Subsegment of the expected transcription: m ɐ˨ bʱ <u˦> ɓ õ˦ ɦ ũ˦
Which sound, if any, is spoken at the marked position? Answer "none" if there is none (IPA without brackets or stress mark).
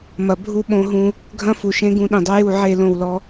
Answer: u˦